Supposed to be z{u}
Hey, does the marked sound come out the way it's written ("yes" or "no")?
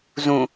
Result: no